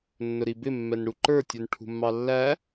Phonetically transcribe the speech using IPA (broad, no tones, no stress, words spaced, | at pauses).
nːʊɾibɪ mːɛnɽuǃə˞ tʲunʈʰṳmːɑlːæ